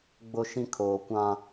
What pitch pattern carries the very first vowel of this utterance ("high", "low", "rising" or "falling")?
high